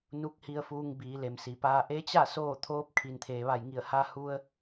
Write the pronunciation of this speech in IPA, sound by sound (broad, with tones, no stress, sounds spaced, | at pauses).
n u˧˥ k̚ h i˧ ə̯ f uː˧ ŋ b iː˩˧ l e˩ m s i˩˧ p aː˧ ʔ e˧˥ t͡ɕ a˥˨ s oː˥˨ t̪ʰ oː˧˥ p̚ kʰ i˩ n t̪ʰ eː˩ ʋ a˧˩ j ŋ i˧˩ ə̯ h a˧ h u˧ ə̯